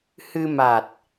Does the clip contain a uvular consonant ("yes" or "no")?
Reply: no